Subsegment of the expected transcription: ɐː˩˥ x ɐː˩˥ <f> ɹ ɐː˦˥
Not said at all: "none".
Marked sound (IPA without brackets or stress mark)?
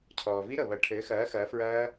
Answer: f